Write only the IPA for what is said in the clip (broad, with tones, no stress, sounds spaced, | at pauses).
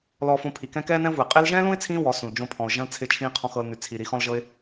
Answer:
l ɔː˧ f õ˧ pʰ i˨ k ɛ̃˦ k ɛː˦ n ɛ̃˦ ʊ̯ v u˨ ɪ̯ qʼ ɪː˧ l ʒ ɛ̃ː˦ l ũ˦ ɪ̯ t͡sʰ ĩː˧ w ɔ˨˦ s ũ˨ l d͡ʒ õ˧ pʰ ɔ̃˨ ʊ̯ ʒ ɐ̃˦ l t͡sʰ ɪː˧ t͡ʃʰ ĩː˧ qʰ ɔ̃˦ x ɤ˧ l n ʉ˨ t͡sʰ i˨ ɾ i˧ x ɔ̃˦ l ʒ ɤ˦ ɪ̯